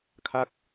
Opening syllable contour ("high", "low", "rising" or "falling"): falling